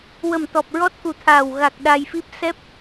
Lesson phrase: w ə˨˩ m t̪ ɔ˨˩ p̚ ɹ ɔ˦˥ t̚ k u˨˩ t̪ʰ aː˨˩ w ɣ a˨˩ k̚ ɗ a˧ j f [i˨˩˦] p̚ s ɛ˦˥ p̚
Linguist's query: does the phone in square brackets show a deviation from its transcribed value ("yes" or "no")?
yes